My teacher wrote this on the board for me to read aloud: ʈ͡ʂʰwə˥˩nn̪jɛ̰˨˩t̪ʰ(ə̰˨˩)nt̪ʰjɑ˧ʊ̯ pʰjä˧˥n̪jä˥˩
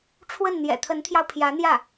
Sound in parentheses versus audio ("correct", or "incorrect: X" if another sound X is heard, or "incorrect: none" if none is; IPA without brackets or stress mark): incorrect: ə˧˥